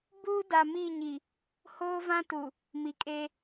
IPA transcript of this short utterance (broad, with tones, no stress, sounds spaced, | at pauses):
b uː˦ d a˨ m i˦˨ ɲ i˨ | h oː˦ v ã˦ t u˨ | m i˨ kʼ e˦